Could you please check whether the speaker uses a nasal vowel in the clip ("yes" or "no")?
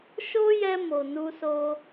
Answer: no